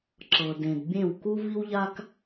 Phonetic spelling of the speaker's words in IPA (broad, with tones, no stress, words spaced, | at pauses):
ǁɤ˩dẽ˩d bʲẽ˥˩w ku˥vi˥wʎa˥k